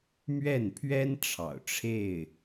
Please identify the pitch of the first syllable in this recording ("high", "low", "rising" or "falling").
falling